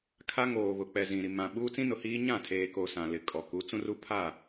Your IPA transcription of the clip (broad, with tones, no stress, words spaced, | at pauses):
kʰa˦ŋoː˨βʊ˨k͡pɛ˨ zĩ˨ ɾi˨mã˨ ɓuː˦t͡sĩ˦nʊ˨hiː˦ ɲã˦˨tʰeː˨ko˨ sã˨lɪ˨ kʼɔ˨ ku˨˦t͡sũ˦ru˦ pʰa˦˨